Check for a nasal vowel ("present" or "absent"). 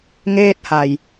absent